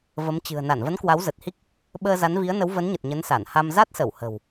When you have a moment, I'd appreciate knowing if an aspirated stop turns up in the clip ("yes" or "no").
no